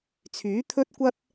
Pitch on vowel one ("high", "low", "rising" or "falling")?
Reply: rising